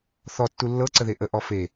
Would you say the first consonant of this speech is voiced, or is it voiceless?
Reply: voiceless